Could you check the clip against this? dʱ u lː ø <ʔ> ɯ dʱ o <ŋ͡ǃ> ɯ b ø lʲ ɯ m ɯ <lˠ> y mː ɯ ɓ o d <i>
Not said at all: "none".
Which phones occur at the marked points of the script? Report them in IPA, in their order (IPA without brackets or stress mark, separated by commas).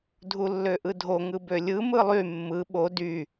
ʔ, ŋ, lˠ, y